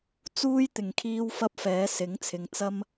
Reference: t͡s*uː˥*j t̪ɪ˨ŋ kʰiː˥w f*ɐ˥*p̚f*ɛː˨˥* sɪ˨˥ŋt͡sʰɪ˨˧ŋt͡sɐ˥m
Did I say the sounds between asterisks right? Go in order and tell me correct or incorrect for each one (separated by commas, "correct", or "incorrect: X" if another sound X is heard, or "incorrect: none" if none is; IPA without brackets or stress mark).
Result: correct, correct, correct